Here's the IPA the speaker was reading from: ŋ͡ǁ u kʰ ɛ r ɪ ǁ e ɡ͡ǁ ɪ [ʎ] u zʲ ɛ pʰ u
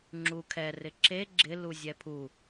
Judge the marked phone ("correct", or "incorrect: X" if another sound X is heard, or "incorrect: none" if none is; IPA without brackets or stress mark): incorrect: l